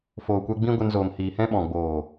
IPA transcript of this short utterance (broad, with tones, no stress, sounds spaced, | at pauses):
f oː˨ kʷ ɛ˧ ɡ͡b ĩ˦ ɡʷ ɛ˧ n z oː˨ m h iː˨ h ɛ̃˦ ɓ ɔ̃˨ ɡ͡b oː˨